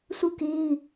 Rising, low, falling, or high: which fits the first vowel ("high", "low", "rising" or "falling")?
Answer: falling